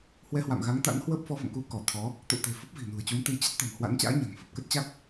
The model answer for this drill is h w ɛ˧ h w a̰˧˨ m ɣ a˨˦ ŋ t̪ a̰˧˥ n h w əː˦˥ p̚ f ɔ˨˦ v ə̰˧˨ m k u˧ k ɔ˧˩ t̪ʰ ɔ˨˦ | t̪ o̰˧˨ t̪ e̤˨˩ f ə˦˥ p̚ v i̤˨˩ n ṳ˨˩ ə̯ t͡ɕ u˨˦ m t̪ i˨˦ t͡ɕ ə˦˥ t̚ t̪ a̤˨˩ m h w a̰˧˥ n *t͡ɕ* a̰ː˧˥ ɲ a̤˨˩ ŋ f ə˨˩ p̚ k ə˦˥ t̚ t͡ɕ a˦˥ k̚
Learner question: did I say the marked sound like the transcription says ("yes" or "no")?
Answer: yes